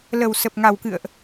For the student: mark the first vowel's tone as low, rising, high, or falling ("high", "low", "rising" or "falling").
low